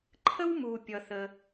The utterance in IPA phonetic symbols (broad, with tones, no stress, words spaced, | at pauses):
ǃʰə˦wmu˩pʲʌ˩ θə˩